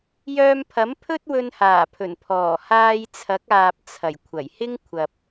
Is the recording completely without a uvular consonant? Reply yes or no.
yes